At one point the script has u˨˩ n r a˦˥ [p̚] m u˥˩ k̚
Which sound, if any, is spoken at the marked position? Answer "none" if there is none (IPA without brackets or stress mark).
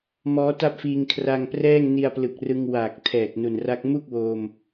k̚